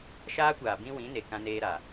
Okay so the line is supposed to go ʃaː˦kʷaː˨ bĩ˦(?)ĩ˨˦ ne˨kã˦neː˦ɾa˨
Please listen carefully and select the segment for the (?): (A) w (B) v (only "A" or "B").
A